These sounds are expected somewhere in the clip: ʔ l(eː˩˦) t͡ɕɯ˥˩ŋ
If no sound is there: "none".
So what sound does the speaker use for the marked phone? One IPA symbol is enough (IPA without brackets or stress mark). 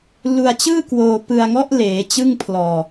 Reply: eː˩˦